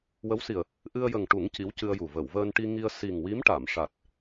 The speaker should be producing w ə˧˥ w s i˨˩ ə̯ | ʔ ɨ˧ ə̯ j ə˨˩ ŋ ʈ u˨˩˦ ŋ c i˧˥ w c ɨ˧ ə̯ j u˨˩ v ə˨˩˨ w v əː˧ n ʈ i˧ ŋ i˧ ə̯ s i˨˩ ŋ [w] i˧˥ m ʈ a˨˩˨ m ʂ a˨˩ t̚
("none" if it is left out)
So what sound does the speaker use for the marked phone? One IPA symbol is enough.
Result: w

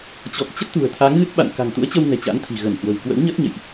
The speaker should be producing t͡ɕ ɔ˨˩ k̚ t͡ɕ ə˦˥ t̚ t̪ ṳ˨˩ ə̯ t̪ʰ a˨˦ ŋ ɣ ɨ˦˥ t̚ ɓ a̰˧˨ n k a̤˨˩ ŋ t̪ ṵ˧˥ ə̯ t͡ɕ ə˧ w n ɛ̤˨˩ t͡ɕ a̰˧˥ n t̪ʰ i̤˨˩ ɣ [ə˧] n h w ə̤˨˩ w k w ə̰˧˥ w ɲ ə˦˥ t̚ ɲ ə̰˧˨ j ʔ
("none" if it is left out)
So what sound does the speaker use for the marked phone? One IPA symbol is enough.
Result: ə˧˩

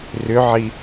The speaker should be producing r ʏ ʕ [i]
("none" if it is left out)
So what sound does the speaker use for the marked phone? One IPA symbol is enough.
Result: i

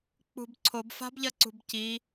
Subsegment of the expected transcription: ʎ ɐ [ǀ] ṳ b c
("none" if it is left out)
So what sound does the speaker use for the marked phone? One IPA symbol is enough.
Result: ǀ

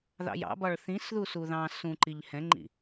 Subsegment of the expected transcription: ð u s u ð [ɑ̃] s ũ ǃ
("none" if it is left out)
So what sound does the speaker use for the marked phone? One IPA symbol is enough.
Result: ɑ̃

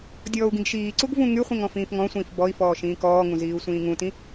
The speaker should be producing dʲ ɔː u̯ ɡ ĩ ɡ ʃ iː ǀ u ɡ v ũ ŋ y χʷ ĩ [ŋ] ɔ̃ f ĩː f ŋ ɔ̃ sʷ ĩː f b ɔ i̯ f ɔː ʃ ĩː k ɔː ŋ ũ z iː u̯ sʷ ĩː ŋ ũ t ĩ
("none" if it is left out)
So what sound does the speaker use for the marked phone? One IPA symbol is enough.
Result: ŋ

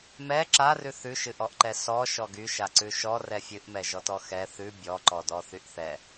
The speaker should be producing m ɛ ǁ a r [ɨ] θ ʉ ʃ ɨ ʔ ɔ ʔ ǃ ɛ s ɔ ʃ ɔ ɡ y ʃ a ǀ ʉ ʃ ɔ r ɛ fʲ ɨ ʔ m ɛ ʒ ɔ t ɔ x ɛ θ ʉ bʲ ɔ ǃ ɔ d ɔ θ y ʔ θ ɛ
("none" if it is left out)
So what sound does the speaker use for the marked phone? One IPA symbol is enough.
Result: ʉ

